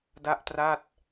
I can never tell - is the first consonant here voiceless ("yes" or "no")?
no